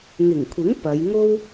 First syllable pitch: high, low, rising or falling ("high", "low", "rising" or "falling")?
low